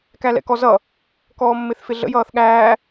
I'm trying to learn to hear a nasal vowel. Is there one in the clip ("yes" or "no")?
no